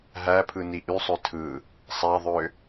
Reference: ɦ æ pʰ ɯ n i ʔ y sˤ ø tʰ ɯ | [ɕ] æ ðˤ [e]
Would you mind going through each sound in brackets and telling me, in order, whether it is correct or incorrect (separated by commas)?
incorrect, incorrect